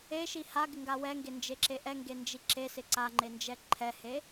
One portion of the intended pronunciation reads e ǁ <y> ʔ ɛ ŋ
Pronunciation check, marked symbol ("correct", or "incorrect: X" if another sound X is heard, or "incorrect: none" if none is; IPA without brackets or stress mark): incorrect: e